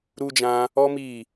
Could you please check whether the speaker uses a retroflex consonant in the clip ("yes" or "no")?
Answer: no